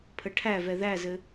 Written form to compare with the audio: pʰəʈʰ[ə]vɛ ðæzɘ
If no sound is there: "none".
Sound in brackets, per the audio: æ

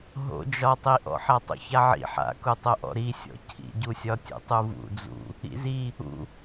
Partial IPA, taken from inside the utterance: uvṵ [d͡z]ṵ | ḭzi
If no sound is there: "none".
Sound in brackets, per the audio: d͡z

